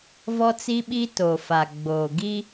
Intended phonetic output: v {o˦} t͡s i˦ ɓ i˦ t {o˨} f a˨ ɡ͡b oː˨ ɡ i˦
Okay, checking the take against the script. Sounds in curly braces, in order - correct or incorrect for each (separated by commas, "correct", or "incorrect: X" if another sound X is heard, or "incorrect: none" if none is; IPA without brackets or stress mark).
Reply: incorrect: ɔ˦, correct